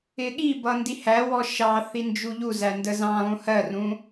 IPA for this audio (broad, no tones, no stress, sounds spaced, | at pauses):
ɪ ɠ i b ʌ n d i h æ w ɔ ʃ ɑ θ i n d͡ʒ u ʎ u z æ n d ə z ɑ̃ lˠ ũ h ɜ r ũ